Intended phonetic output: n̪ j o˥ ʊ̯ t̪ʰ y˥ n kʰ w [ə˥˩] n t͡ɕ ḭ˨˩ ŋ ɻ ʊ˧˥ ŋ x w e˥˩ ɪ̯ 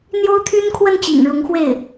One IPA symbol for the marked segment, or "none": ə˥˩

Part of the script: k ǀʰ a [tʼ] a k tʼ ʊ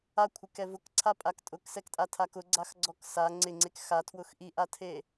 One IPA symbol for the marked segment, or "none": pʼ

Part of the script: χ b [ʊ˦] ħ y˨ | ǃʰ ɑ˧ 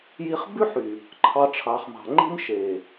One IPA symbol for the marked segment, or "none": ʉ˦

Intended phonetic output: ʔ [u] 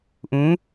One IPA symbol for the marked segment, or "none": ũ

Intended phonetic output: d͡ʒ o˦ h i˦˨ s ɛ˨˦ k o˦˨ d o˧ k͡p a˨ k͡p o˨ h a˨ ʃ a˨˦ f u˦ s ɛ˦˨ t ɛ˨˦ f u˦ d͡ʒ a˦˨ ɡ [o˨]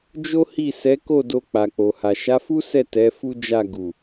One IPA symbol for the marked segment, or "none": u˨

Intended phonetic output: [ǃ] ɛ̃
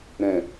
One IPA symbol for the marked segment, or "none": ɾ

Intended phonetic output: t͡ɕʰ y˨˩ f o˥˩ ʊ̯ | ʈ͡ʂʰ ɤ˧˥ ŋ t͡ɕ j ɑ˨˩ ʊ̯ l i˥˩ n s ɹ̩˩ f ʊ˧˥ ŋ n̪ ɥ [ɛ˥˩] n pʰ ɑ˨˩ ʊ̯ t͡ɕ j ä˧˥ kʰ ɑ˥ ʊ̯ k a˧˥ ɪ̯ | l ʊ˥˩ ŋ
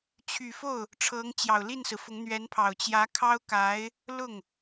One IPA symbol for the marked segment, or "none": ɛ˧˥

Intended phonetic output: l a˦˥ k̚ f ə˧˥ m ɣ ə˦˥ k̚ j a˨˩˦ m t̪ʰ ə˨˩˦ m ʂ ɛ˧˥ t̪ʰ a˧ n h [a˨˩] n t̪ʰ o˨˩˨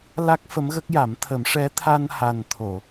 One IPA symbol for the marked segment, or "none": a˨˩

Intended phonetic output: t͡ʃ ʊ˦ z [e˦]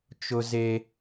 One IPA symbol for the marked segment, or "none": e˦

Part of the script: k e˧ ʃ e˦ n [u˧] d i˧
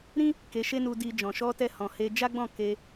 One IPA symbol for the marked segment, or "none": u˧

